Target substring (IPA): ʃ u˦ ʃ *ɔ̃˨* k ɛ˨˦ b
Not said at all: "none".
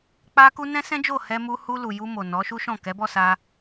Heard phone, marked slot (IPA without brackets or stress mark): ɔ̃˦˨